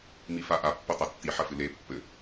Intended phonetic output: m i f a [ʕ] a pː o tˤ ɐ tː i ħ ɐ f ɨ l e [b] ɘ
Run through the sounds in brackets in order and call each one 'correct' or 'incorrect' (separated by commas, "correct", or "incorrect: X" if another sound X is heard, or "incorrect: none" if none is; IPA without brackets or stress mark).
incorrect: ʔ, incorrect: pː